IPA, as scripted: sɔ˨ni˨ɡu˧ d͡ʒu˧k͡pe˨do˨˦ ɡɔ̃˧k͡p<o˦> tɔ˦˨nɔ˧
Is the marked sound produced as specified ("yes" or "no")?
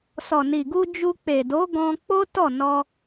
yes